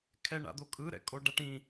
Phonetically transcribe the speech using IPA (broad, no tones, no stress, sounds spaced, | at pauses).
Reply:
kʰ ɛ ɳ a̰ d̪ o kʼ ɯ ɾ ɛ̰ kʼ o ɖ a ʈ ĩ